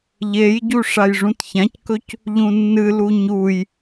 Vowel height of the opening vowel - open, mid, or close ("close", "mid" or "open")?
mid